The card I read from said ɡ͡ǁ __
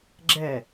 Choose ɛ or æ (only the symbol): ɛ